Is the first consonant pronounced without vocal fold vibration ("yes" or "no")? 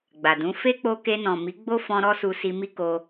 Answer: no